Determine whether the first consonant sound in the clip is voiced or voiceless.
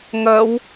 voiced